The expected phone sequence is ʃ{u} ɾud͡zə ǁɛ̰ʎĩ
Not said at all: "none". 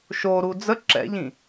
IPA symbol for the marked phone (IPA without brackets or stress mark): o